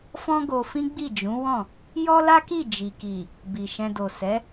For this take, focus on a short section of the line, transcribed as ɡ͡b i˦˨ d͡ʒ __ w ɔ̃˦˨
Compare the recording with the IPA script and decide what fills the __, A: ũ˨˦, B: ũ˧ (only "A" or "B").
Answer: A